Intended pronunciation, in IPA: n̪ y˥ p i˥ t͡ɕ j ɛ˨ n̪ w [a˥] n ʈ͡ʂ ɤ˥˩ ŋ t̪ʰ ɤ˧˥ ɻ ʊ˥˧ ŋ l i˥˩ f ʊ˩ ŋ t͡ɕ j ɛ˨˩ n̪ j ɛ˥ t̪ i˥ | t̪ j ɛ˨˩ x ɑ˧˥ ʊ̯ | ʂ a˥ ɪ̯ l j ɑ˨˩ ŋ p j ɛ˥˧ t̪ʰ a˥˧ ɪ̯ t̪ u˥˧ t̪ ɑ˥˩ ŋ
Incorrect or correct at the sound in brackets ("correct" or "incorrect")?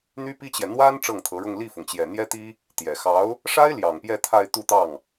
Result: correct